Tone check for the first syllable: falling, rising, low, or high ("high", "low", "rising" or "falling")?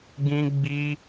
high